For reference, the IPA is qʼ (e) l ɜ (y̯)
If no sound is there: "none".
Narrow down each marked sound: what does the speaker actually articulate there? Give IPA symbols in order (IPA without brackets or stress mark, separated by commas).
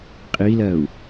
i, u̯